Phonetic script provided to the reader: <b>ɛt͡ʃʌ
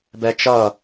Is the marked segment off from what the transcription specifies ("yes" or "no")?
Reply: no